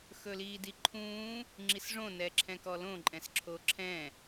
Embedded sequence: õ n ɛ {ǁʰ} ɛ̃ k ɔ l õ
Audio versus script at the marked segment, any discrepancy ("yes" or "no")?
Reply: no